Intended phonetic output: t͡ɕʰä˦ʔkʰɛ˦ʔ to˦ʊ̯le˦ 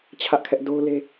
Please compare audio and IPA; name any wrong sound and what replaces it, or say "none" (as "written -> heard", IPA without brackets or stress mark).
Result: t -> d